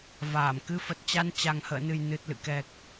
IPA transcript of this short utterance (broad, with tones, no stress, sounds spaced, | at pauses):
v aː˧˩ m k ɨ˧ f ə˨˩ t̚ t͡ɕ a˧ n t͡ɕ a˨˩ ŋ h ə̰ː˧˨ n ɨ˨˩ j n ɨ˨˩ t̚ l ɨ̰˧˨ k ɛ˨˩ k̚